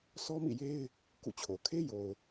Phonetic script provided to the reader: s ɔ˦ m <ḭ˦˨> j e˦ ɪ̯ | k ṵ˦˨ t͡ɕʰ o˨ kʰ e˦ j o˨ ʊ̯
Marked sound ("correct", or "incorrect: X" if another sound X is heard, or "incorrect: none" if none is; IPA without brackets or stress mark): correct